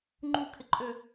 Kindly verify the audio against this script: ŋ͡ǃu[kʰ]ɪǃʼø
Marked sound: correct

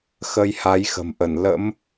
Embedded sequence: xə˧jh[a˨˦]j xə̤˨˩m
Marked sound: correct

